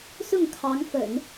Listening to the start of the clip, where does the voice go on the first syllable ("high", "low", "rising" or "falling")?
falling